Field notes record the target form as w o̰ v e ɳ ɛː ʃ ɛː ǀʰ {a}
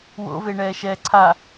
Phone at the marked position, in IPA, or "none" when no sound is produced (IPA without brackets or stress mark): a